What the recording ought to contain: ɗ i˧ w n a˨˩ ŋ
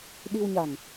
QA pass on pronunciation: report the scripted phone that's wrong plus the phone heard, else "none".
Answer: n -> ɲ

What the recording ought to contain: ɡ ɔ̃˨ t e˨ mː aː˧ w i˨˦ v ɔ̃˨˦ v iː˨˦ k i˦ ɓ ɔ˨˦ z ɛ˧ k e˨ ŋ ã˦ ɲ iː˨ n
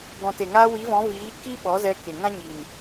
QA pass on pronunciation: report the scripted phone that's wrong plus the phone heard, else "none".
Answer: mː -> ŋ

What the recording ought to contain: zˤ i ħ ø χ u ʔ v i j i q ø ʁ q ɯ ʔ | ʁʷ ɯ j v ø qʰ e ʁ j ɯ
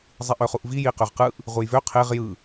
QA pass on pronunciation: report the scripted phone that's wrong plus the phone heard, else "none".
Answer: ħ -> ʔ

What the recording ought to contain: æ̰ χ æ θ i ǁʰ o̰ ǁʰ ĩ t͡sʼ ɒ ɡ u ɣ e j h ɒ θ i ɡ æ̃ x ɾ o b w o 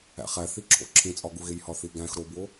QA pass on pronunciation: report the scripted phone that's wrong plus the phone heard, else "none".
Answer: none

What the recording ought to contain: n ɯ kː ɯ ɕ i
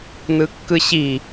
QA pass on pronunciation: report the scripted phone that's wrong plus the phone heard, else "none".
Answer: none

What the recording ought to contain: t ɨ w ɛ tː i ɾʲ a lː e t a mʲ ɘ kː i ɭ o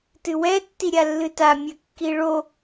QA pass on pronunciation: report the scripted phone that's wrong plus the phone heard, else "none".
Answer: e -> ɨ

